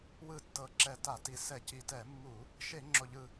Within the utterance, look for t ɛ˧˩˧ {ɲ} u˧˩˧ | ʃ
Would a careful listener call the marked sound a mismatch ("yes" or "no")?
yes